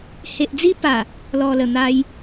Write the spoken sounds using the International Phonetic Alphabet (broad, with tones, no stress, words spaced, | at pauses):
he˨ʔd͡zi˧pa˨˩ | lɔ˨˩lə˨˩n̪a˧j